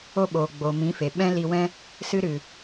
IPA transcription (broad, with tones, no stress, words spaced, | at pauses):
o˧ ɓoː˨ɡ͡boː˨mĩ˨˦fe˨ ɓɛ̃˦li˧wɛ̃˦ | sɨ˧ɾɨ˨